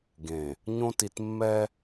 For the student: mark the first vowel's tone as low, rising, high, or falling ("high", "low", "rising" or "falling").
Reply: low